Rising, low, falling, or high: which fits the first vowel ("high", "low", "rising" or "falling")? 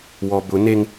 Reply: low